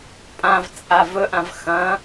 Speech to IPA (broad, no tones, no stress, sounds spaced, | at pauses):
pʼ ã v t͡sʼ a v ɵ ʔ ã v x ɐ̃